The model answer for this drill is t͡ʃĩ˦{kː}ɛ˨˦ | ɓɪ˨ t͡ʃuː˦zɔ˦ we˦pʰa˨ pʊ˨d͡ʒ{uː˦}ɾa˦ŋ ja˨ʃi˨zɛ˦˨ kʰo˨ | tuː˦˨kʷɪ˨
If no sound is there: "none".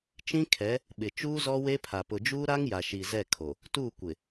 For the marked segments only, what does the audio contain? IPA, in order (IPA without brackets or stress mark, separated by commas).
kʰ, uː˦